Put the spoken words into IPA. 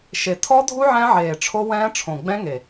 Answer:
ʃ e˨˩ tʰ ɔ˦˥ dʱ u˦˥ ʕ ɛ̃˦˥ ʕ eː˨˩ ʈ͡ʂʰ o˦˥ w ɛ̃ː˦˥ ʈ͡ʂʰ õ˨˩ ɡ͡b ɛ̃˦˥ ŋ e˨˩

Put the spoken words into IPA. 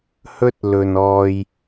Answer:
h ɵ˥ t̚ l ɵ˧ n ɔː˥ j

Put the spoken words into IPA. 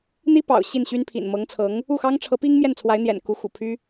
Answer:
n̪ i˥ p ɑ̰˨˩ ʊ̯ ɕ i˥˩ n ɕ y˥ n pʰ ḭ˨˩ n m ɤ˧˥ ŋ t͡sʰ ɤ˧˥ ŋ | u˥˩ x ɑ˥ ŋ ʈ͡ʂʰ ɤ˧˥ p i˥ ŋ m j ɛ˥˩ n t͡sʰ w a˧˥ ɪ̯ n̪ j ɛ̰˨˩ n k u˧˥ x ṵ˨˩ pʰ y˥

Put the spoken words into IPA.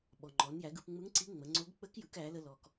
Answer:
ɓ ɔ˩ ŋ͡ǃ ɔ˩˧ n j æ˩˧ ɡ ɯ˩˧ p ŋ͡m ɯ˧˥ ŋ ǀ i˧˥ ŋ͡m ə˩˧ ŋ͡ǀ o˧˥ ɡ k͡p ə˧˥ k j ɯ˩˧ k æ˩˧ l ə˧ l ɔ˩ k

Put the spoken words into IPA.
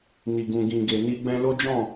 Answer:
n i˨ ɡ ũ˨ ɡ ĩ˨ ɡ e˨ n i˧ ɡ͡b ɛ̃˧ l o˦ d͡ʒ ɔ̃˦˨

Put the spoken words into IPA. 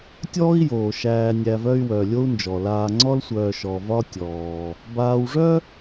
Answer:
tʲ ɔː˥ i̯ j oː˩ ʃ æː˨ nʲ æ˨ v œ˦ y̯ w œ˩ lʲ o˦ u̯ n d͡ʒ ɔ˩ l aː˨ ŋ͡ǀ ɔ˥ l sʷ œː˨ ʃ ɔ˨ v ɒ˥ tʲ ɔː˩ | b aː˦ w ʐ œ˥

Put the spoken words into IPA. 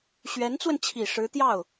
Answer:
ɕ ɥ ɛ˧˥ n t͡s w ə˧ n t͡ɕʰ i˨˩ ʂ ɻ̩˧˥ t̪ j ɑ˥˩ ʊ̯

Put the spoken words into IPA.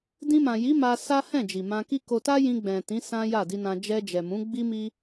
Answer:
d ĩ˧ m ã˨ j i˨˦ m a˧ s a˦ h ɛ̃˦˨ d͡ʒ i˨ m ã˧ k i˦ k o˧ t a˦ j ĩ˧ ɡ͡b ɛ̃˨ t ĩ˨˦ s ã˦ j a˦˨ d i˧ n ã˧ d͡ʒ ɛ˧ d͡ʒ ɛ˨ m ũ˨˦ ɡ͡b i˦ m i˦

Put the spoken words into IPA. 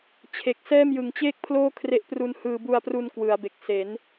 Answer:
t͡ɕʰ e˨˩ k̚ s ɛː˥˩ m j ɯ˨˩ ŋ t͡ɕ eː˥˩ k̚ pʰ l oː˥˩ kʰ r e˦˥ ʔ p r u˧ n h ɯː˧ b u˧ a̯ p r u˧ n k w ɯ˩˦ a̯ b e˨˩ k̚ s e˩˦ n

